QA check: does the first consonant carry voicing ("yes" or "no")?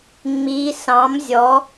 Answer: yes